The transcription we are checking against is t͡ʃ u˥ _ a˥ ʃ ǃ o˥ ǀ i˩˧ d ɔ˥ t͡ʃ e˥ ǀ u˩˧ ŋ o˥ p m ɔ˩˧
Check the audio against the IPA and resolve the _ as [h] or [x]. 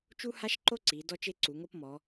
h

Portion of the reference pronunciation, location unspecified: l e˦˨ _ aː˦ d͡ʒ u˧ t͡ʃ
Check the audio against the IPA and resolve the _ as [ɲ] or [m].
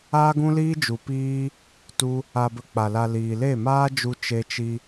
m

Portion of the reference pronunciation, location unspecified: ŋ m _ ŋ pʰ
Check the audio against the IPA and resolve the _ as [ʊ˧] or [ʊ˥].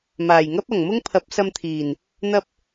ʊ˥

